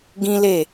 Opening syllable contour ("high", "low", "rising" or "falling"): high